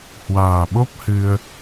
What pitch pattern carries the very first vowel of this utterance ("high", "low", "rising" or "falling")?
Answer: low